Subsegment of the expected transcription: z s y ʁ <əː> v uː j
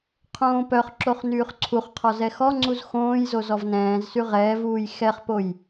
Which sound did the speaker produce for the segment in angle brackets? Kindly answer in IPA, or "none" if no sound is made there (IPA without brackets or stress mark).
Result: ɛː